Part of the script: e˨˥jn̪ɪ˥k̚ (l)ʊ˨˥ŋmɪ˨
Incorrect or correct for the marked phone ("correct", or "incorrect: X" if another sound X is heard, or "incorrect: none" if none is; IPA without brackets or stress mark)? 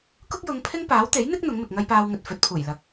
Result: incorrect: n̪